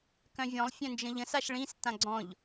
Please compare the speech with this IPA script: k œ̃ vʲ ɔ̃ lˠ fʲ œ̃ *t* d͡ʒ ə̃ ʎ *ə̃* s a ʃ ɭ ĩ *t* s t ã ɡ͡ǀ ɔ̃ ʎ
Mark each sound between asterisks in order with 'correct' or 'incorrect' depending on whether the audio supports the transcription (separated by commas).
incorrect, correct, incorrect